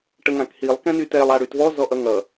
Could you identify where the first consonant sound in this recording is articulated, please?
retroflex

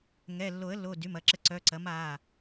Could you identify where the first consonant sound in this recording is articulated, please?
velar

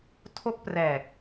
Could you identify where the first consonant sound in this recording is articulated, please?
alveolar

